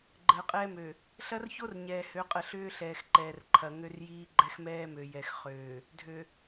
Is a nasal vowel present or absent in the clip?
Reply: absent